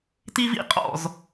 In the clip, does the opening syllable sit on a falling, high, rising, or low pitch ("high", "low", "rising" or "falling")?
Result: high